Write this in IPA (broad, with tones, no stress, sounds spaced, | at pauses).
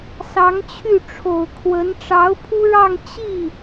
s ɑ˧˥ ŋ t͡ɕʰ y˥˩ ʈ͡ʂʰ o˨˩ ʊ̯ kʰ w ə˧˥ n ʈ͡ʂ ɑ˧˥ ʊ̯ pʰ u˥ ɻ ɑ˥˧ ŋ t͡ɕ i˥˩